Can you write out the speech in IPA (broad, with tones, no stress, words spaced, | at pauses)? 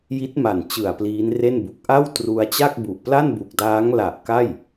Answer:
ji˦˥t̚ma˨˩n t͡ɕɯ˨˩a̯ pliː˦˥nre˥˩nbu˨˩k̚ ʔa˥˩w tru˧a̯t͡ɕa˥˩k̚ bu˨˩ʔpla˥˩nbu˨˩k̚daː˦˥ŋ la˨˩ʔ ka˥˩j